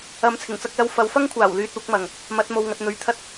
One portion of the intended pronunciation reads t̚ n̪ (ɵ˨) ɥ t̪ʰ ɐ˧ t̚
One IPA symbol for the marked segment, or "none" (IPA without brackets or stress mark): ɵ˨˥